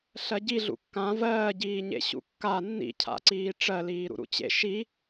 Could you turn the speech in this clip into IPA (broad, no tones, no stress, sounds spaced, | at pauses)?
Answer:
ɬ ɜ ɟ i ɮ ṵ kː ã v ɜː ɟ iː ɲ ḛ ɕ ṵ kː a nː ḭ cʰ a̰ ǀ iː ʈ͡ʂ ɜ l iː ɾ ṵ ɾ ṵ t͡ɕ ḛ ʃ i